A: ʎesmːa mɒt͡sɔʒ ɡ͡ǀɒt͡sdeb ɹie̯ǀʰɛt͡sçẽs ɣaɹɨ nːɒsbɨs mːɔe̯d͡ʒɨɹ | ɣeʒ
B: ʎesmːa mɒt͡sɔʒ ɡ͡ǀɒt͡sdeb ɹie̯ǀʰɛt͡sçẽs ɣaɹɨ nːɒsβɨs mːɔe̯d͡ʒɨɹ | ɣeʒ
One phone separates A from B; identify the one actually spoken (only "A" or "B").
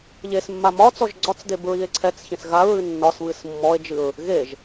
B